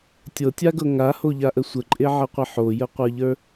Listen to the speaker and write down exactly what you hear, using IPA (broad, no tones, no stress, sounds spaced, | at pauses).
tʲ ɤ tʲ a ɡ ɤ ŋ a h o ʎ a ʔ ə sʷ ə ǃʼ e ʕ ə qʷ ə ħ o j ə qʷ ə˞ ʎ ə˞